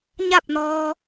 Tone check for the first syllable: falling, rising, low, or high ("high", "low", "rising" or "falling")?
falling